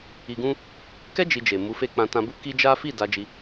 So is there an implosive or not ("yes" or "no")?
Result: no